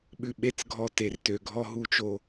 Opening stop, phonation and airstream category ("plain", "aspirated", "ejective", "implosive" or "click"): implosive